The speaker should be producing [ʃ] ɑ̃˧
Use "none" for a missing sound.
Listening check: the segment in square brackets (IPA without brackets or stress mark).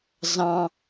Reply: z